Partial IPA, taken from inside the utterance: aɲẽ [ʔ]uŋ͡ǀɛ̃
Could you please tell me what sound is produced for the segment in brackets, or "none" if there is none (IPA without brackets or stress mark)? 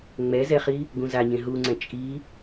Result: ɦ